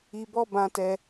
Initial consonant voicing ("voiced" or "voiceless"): voiced